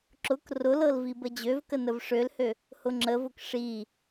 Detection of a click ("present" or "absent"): present